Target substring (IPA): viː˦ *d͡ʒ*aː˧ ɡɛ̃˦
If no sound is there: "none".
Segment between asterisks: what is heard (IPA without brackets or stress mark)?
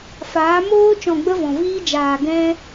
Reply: d͡ʒ